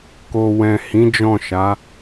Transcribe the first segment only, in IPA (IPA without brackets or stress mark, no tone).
k